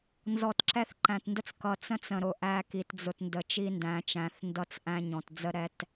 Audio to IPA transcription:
n z ɔ˨ t ǁ ɛ˦ θ ǃ æ̃˨ t n d ə˦ t͡s k ʌ˨ t͡s ə̃˦ t͡s ə̃˨ ɾ ʊ˨ ʔ æ˦ k i˨ t d͡z ʊ˨ t n d ə˨ t͡ʃ i˦ n d æ̃˨ t͡ʃ æ̃˨ θ n d ʌ˦ t͡s ʔ æ̃˦ ɲ ɔ̃˨ t d͡z ə˦ ɾ ɛ˦ t

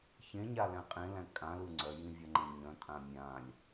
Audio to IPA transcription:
ç ẽ ɲ a l æ̃ qʼ ẽ l æ̃ kʼ ã l ɯ ŋ͡ǀ œ j ĩ vʲ æ ŋ͡ǃ ẽ ɲ œ̃ tʼ ã mʲ ã lʲ

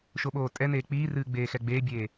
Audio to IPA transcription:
ʃ o ɓ oː tʼ ɛ n eː k͡p iː r ɨː ɡ͡b eː x ɛ ɡ͡b eː bʲ eː

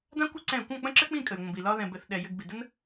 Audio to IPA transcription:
d ã˦ kʷ ɪ˦ ǀ ɛ̃˦˨ kʷ ɑ̃˦˨ k͡p ə̃˦ ǁ ɘ˦ k͡p ĩ˦˨ kʼ ə˨ j ŋʷ ə̃˨ b i˨ l ɒ˧ ð ɛ̃˨ b ɘ˨ θ ɗ ɛ˨ j ɘ˧ ɡ b i˨ d ə˦ n

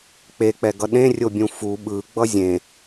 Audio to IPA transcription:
k͡p e k͡p ɛ ɡ ʌ ɗ ẽ rʲ o bʲ ũ f u ɓ ɯ ɡ͡b ʌ zʲ ẽ

